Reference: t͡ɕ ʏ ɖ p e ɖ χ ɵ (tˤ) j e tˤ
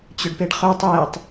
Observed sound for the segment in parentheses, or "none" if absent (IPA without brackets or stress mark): tˤ